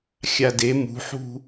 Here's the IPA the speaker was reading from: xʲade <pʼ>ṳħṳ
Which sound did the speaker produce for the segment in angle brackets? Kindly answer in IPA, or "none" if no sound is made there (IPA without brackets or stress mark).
m